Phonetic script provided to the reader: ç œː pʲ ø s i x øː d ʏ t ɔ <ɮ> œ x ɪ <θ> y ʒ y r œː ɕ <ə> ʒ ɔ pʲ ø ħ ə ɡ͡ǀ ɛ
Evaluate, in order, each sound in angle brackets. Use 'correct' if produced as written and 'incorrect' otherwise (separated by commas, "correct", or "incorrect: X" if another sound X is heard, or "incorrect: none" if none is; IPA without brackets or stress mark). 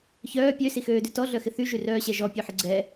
correct, correct, incorrect: ɛ